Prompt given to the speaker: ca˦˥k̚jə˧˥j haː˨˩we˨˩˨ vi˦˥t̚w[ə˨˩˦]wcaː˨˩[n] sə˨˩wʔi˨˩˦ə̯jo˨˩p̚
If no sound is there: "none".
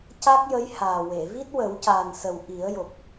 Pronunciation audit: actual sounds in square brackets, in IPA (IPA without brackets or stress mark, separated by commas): ə˨˩˦, n